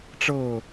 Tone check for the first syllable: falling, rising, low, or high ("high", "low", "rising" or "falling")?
falling